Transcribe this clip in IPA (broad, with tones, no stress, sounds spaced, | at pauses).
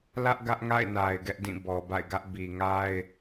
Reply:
l ä˦ ʔ ɡ ä˦ ʔ ŋ a̰˦˨ ɪ̯ n a˨ ɪ̯ ɡ ɛ˦ ʔ d ĩ˦˨ b ɔ˨ b a̰˦˨ ɪ̯ ɡ ä˦ ʔ b i˨ ŋ a˦ ɪ̯